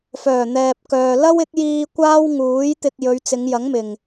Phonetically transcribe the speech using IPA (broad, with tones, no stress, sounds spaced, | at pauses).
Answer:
f œː˨˩ n̪ ɛː˨ p̚ k œː˨ l ɐ˥ w ɪ˨˥ k̚ j iː˧ kʷ aː˥ w ŋ uː˨˥ j t̪ ɪ˧ k̚ j ɵ˨˧ ɥ t͡s ɪ˨˧ ŋ j ɐ˨˥ ŋ m ɪ˨˩ ŋ